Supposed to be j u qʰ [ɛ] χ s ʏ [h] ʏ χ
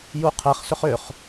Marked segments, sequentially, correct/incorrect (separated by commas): correct, incorrect